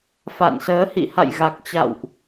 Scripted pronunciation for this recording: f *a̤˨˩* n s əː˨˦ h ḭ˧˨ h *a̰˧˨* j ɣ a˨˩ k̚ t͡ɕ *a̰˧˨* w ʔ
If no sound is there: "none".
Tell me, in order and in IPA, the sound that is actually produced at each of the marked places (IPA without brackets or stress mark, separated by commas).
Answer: a̰˧˨, a̰˧˨, a̰˧˨